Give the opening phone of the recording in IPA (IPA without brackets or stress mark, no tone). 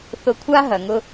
θ